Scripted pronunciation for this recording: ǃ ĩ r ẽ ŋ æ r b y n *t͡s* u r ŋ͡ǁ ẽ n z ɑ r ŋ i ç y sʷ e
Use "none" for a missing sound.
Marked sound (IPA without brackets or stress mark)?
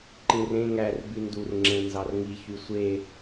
d